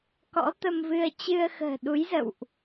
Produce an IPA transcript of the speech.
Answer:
k ɔ̰˧˥ t̪ ə˧ m v ɨ˧ ə̯ t͡ɕ ɨ˧ ə̯ x ə̤ː˨˩ ɗ u˨˦ j z ə̰˧˨ w ʔ

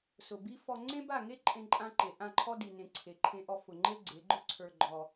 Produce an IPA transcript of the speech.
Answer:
s ʊ˨ b i˦ f ɔ˦ ŋ͡ǀ ẽ˦ b a˦˨ ŋ e˦ ǃʼ ẽ˦ ǃʼ ã˦ ǃ e˨ ʔ ã˦˨ ǃʰ ɔ˦ d i˨ n ẽ˨ ǀʰ e˨ ǃʰ ẽ˦ ʔ ɔ˦ f ʊ˨ ŋ͡ǃ e˦ ɡ͡ǀ e˨˦ ɡ͡ǃ ʊ˦ ǀʰ ə˞˦ ɡ͡ǃ ɔ˦

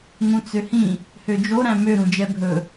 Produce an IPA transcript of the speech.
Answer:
ŋ ũ t͡s ø h ĩ | h ø d͡ʒ o ɾ æ̃ m ø ɾ ũ d͡ʒ ɛ bʱ ɵ

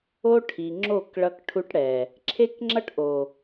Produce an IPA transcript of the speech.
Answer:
o˦ ʈʰ i˨ ŋ͡ǁ o˦˨ k ɭ ʌ˦ k ʈʰ u˦ ʈ ɽ ɛ˨ | ǁʰ e˦ k ŋ͡ǁ ʌ˦ ʈ ʔ o˨

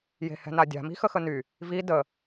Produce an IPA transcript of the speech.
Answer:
j e̤ h ɛ̤ n a dʲ a̤ m i̤ x ə x ə n y | v i d ə

